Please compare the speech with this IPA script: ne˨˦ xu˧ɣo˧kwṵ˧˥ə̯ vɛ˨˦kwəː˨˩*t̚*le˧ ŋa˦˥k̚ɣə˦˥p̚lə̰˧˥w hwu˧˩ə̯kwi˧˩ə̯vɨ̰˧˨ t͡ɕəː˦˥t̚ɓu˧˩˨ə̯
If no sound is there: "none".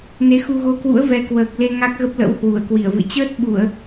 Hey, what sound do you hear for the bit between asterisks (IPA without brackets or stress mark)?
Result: k̚